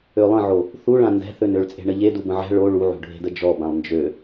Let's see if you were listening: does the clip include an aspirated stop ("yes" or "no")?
no